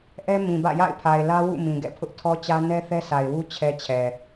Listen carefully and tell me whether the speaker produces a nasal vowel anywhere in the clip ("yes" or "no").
yes